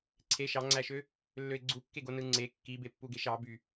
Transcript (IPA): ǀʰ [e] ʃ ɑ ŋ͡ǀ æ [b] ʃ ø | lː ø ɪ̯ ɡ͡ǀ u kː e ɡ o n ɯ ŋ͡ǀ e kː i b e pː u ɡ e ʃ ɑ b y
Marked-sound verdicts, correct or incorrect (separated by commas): correct, incorrect